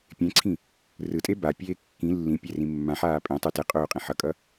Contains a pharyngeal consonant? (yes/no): yes